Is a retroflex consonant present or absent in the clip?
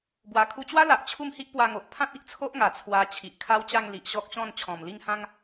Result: absent